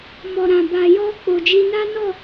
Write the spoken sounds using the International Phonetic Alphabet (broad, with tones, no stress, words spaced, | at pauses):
mɔ˨ɾã˨ba˨ jɔ˧ k͡po˨d͡ʒi˧ na˦nɔ˦˨